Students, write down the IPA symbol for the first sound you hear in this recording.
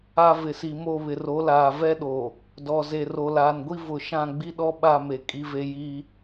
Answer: a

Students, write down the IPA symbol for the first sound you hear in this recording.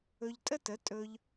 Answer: ɵ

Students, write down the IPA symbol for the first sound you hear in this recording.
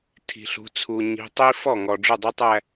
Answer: tʰ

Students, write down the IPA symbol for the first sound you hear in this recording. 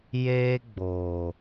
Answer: j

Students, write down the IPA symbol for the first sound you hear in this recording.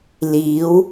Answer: l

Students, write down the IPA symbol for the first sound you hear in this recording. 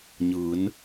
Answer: ɲ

